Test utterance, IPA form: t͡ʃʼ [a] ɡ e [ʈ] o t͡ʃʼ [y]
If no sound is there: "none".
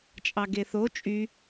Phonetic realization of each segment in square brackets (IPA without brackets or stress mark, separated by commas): ɑ, θ, y